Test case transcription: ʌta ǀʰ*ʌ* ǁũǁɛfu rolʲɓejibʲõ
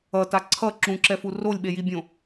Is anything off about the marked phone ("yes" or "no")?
no